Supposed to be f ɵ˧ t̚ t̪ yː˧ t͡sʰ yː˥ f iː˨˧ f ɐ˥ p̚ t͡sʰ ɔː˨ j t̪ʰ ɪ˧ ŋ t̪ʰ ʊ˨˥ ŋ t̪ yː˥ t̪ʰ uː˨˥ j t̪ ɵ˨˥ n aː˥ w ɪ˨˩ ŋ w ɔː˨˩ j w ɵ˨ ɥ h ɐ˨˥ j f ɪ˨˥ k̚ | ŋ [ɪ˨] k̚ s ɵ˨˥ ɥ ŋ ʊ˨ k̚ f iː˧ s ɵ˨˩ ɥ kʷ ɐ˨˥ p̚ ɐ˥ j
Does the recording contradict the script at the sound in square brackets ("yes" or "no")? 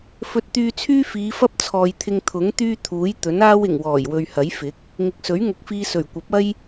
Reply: no